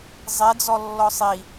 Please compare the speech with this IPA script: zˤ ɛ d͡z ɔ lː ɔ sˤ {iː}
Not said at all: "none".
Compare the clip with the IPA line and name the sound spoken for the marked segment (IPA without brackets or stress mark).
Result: i